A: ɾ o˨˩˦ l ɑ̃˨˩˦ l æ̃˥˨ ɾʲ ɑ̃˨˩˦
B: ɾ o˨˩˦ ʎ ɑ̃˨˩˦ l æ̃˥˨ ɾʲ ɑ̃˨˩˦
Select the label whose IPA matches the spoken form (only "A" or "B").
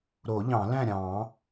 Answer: B